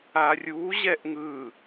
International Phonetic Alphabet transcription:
a rʲ u ʑ ɛ ʔ ŋ ɯ

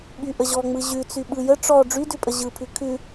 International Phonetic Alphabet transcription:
ɓ y ʔ ə ʑ ɔ ŋ͡m ɯ ʑ ʉ t͡s y ɓ ɯ j ə ʈ͡ʂ ɔ ɖ͡ʐ y d ʉ pʼ ə ʑ ɯ pʰ ʉ kʰ ʉ

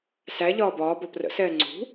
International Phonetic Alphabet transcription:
s æ ʎ ɒː b ɒː b ɒ p r ə̰ s ɛː ŋ͡ǀ ṳ

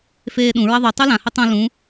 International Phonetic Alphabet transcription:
f eː ɗ ũ ɹ ɐ ðˤ u tˤ u l ã h ɵ tˤ ũ l ũ

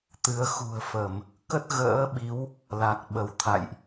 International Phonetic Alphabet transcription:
t̪ ɨ˨˦ ə̯ x ṳ˨˩ ə̯ f ə˧˩˨ m | k ə˦˥ t̚ ɣ ə̰ː˧˥ ɓ i˨˦ w | l a˨˩ k̚ ɓ ə˧˩ w t̪ʰ a̰˧˨ j ʔ

